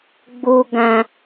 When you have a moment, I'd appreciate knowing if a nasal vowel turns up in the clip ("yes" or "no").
yes